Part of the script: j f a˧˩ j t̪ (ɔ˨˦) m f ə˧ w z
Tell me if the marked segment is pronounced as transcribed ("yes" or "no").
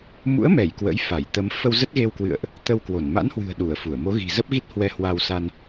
no